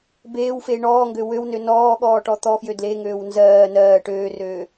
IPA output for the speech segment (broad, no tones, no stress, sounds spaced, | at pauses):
b eː w f eː ɳ ɔː ŋ ɡ ø w ø w n ø n ɔː ɠ ɔː ʈ ɔ t̪ ɔ f j ø d l e ŋ øː w n z ɜː n ɜː ʈ øː r øː